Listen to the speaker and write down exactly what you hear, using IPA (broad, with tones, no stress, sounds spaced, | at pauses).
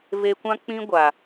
v e˧ kʷ ã˦ k͡p ĩ˦ ɡʷ a˨